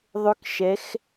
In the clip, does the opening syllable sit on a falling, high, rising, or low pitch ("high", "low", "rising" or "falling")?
high